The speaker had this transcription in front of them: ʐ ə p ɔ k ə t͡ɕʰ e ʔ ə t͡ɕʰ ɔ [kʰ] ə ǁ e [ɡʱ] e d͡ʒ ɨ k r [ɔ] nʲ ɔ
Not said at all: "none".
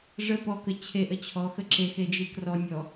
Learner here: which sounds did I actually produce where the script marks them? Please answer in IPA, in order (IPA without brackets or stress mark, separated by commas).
x, x, ɔ